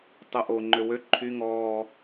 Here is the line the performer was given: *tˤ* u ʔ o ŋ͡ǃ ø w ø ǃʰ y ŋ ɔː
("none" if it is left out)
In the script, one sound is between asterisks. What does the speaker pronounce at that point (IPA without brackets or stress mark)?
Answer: tˤ